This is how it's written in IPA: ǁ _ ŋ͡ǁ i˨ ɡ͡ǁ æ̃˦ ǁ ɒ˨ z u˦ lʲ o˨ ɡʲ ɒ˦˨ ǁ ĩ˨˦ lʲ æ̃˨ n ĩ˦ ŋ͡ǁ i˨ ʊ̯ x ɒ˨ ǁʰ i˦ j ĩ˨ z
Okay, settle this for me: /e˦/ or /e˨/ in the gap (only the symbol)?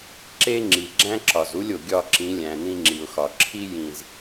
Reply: e˦